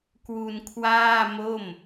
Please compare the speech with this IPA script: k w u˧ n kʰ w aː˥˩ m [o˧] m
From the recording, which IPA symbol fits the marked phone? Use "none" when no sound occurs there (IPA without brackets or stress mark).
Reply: o˥˩